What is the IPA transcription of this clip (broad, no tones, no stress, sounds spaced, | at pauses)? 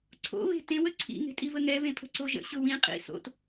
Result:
ǀʰ o̰ β e̤ t ẽ w ə ǀʰ ḭ ŋ e̤ tʼ i v ə ŋ ɛ v ẽ pʰ ə̤ ǀ o ʒ ə̰ ɕ ʊ w ĩ qʼ ḭ s o̰ t